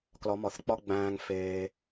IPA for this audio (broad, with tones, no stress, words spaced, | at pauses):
klɒ˨˦mɒ˨θk͡pɒ˦ɡ͡bæ̃ː˧ŋ feː˧